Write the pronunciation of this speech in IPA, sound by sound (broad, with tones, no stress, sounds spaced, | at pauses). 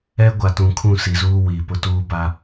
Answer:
ɛ˦ ɡʷ a˨ t ũ˨ kʰ ũ˦˨ s i˨ z uː˦ w i˨ p ʊ˦ t uː˦ b a˦